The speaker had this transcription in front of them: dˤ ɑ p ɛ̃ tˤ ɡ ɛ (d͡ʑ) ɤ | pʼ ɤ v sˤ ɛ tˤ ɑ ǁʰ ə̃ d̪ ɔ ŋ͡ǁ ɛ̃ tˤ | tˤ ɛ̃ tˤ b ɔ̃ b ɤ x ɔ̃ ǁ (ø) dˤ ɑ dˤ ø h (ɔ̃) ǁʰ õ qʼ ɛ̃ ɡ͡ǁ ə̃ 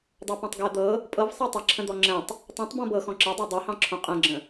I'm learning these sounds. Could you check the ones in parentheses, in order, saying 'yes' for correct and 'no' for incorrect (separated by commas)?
no, no, no